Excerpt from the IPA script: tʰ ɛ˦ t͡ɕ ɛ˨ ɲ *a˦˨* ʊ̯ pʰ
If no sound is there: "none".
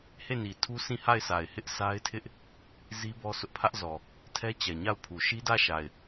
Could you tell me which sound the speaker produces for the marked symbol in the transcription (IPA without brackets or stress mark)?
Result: a˦˨